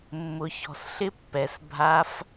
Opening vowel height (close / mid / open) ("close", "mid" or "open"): close